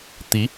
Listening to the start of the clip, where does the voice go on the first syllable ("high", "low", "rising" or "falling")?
rising